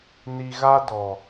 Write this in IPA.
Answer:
n i˨ ɣ a˦ d ɔ˨

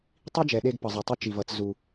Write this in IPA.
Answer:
tˤ i˥ d͡ʒ ɛ˩ ɗ e˧ ɡ p ʌ˩ zˤ o˩ tˤ u˧ t͡ʃ i˩ v ʌ˩ t͡s z u˩

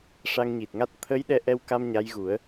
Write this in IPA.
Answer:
ʂ a˧ ŋ ɲ i˨˩ t̚ ŋ a˦˥ t̚ t̪ʰ ə˧˥ j ɗ ɛ˧ ʔ ɛ˧ w k a˧ m ɲ a˧˥ j ɣ u˨˩˦ ə̯

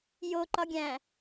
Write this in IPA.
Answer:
j o ǃ ɒ ɡʲ æ̃

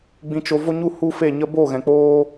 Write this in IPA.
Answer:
ɡ͡b ĩ˧ t͡ʃ o˧ v o˦ ɲ u˦ h u˦ f e˦˨ ɲ ə˧ b o˦˨ ɣ ɛ̃˨ k͡p oː˦

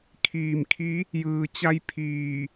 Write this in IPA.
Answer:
kʰ iː˧˩ m kʰ i˧˥ | j ɯː˩ t͡ɕ a˧ j pʰ iː˧˩

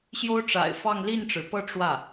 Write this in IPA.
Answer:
ɕ j o˥ ʊ̯ ʈ͡ʂ a̰˨˩ ɪ̯ f ɑ˥˧ ŋ l i˥˩ n ʈ͡ʂ ɻ̩˩ p ɤ˥˧ ʈ͡ʂ w ä˥˩

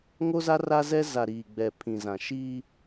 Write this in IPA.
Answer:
ŋ o˦ z a˦ r a˦ z ɛ˦ z a˨ ɾ iː˨ ɡ͡b ɛ˨ pʰ ĩ˨ z ã˨ ʃ i˦

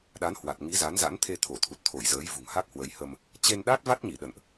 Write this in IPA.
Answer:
ɗ a˨˦ n h w a˨˩ t̚ ŋ i˨˦ z a˨˦ n z a̰˧˥ n t̪ʰ e˧ t̪ʰ o˧˩ t̪ʰ u˨˩ t̚ t̪ʰ o˧˩ j z əː˨˦ j v ṳ˨˩ ŋ h a˦˥ k̚ h w ə˨˦ j h ə˧ m | t͡ɕ e˧ n ɗ a˦˥ t̚ v a˦˥ t̚ ɲ i˧˩ ɗ ə̰˧˨ n ʔ

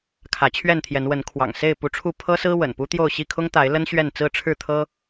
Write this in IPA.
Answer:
kʰ ä˨˦ t͡ɕʰ ɥ ɛ˥˨ n t̪ʰ j ɛ˨˦ n w ə˨˦ n kʰ w ɑ̰˨˩ ŋ s e˥˨ ɪ̯ p u˨˦ ʈ͡ʂʰ u˥˨ pʰ ɤ˦ s ɹ̩˦ w ə̰˨˩ n p u˦ t̪ j o˥˨ ʊ̯ ɕ i˥˨ kʰ ʊ˦ ŋ t̪ a˨˦ ɪ̯ l ə˦ n ɕ ɥ ɛ˥˨ n t͡s ɹ̩˥˨ ʈ͡ʂʰ ɻ̩˥˨ t̪ʰ ɤ˦

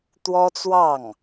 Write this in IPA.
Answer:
t̪ w ɔ˥ t͡s w ɑ˥˩ ŋ

